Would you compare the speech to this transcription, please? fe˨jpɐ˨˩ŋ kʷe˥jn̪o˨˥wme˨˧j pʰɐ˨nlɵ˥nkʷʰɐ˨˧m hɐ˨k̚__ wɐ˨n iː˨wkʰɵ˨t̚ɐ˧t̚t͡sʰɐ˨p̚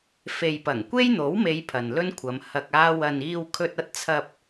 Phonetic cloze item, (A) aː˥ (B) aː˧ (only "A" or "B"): B